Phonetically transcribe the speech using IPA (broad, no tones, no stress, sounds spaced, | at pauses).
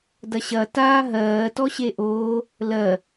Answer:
d ɐ ɕ ɐ t aː ɦ ɜː t ɔ ɕ e ʔ oː | l ɜ